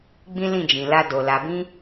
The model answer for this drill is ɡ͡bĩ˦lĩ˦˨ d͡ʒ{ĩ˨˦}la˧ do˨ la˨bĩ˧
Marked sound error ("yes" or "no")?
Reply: yes